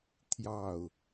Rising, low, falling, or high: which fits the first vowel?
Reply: falling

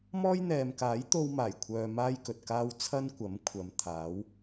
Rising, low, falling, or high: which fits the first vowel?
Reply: high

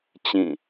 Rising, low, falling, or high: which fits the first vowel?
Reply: falling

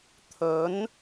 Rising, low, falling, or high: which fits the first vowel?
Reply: rising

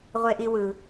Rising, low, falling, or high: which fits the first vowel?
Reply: high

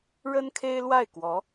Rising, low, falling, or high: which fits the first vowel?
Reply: high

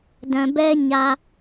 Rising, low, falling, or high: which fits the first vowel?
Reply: low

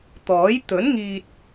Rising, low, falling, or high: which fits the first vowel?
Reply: rising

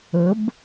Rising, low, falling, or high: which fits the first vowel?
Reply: rising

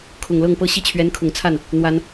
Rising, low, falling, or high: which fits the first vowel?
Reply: low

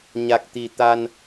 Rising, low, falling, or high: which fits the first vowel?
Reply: low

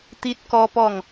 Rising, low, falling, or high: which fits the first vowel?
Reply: high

